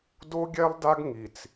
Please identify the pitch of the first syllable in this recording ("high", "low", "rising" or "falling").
high